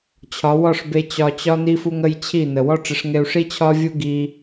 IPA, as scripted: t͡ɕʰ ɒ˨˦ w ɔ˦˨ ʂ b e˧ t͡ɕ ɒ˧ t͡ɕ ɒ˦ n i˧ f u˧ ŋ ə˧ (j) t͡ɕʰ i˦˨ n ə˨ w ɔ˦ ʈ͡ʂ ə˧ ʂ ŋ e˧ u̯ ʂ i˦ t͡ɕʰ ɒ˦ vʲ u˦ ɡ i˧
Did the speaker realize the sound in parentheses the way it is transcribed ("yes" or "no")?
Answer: yes